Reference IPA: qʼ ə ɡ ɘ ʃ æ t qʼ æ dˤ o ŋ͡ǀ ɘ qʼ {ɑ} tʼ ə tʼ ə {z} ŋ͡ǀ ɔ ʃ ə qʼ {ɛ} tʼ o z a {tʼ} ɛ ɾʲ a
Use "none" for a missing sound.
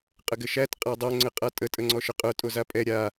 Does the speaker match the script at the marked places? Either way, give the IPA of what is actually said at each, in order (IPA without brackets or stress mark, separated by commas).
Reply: a, none, œ, pʼ